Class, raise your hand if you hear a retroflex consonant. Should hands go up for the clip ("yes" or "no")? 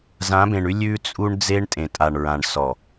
yes